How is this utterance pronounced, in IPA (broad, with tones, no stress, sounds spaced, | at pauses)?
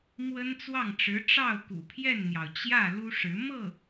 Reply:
m w ə˥ n t͡s w ɑ˥˩ ŋ ʈ͡ʂ ɻ̩˧˥ ʈ͡ʂ ɑ˥˩ ʊ̯ k ṵ˨˩ pʰ j ɛ˥˩ n n̪ j ɑ˩ ʊ̯ t͡ɕ j ä˥˩ l u˥ ʂ ɻ̩˧˥ m ɤ˥˩